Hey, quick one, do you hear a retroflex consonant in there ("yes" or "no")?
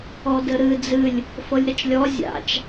no